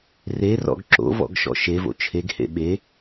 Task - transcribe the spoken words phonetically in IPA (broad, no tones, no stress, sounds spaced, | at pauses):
r e r ɔ̰ ɡ ǁ o̰ v ɔ̰ ɡ ʃ ɔ̰ ʃ e v o̰ t͡ʃʰ e ɡ h ḛ ɓ e